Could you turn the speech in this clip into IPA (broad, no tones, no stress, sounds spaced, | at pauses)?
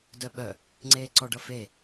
d œ ɓ œ | ŋ͡ǀ eː ǀ ɔ ɖ ʌ f e